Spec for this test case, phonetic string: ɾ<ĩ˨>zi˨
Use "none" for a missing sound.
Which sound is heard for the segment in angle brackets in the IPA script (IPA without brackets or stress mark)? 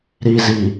i˨